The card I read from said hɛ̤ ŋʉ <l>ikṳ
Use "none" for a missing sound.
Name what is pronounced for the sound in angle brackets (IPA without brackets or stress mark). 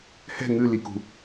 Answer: l